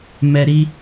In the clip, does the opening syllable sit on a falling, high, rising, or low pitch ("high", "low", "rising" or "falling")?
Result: high